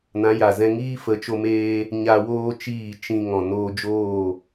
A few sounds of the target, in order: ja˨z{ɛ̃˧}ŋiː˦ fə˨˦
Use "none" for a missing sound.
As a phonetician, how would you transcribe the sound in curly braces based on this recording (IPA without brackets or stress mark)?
ɛ̃˧